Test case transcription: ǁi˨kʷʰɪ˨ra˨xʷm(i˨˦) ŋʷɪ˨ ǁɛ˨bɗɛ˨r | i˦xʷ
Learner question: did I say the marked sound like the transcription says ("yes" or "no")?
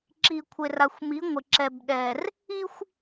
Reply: yes